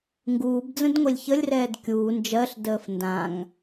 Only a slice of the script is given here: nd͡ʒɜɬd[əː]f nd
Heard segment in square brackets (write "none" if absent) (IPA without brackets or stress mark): əː